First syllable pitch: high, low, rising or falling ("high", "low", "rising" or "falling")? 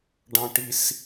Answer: high